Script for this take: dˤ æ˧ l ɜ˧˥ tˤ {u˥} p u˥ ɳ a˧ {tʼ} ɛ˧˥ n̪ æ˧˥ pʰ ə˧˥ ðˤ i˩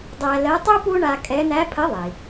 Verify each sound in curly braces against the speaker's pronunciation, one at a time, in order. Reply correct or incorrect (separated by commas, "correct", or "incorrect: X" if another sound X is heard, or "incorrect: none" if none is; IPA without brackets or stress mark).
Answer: correct, incorrect: kʼ